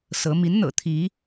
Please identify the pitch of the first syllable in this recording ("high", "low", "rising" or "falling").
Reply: rising